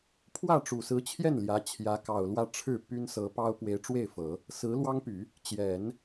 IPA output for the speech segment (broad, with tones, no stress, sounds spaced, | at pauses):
pʰ w ä˥˩ ʈ͡ʂ u˨˩ s ɹ̩˧˥ t͡ɕʰ j ɛ˥˩ n l j ä˧˥ t͡ɕʰ j ä˧˥ k ɑ˨˩ ʊ̯ l w ä˥˧ ʈ͡ʂʰ ɻ̩˥˩ p y˥ n s ɤ˧˥ p ɑ˥ ʊ̯ p w e˧˥ ɪ̯ ʈ͡ʂ w e˥˩ ɪ̯ f ɤ˨˩˦ | s ɹ̩˧˥ l w ɑ˥ ŋ p y˨˩˦ | t͡ɕ j ɛ˨˩˦ n